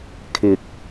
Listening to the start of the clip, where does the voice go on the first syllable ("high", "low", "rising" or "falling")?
low